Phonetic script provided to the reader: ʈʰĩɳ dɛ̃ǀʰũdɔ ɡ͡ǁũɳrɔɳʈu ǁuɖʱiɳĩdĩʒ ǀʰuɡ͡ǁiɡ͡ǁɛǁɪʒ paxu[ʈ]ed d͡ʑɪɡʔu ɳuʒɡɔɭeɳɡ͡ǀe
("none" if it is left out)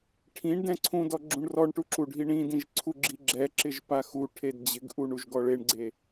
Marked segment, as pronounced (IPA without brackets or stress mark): ʈʰ